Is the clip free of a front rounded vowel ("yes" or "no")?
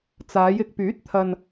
no